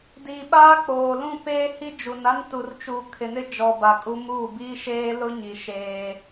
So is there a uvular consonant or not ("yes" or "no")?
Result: no